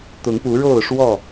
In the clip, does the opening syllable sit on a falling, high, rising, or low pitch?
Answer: rising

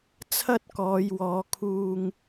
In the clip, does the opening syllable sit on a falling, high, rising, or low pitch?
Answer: high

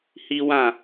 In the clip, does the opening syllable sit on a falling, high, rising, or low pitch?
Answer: high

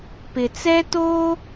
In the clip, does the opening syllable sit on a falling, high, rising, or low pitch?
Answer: low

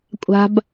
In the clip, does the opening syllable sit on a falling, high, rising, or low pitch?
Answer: high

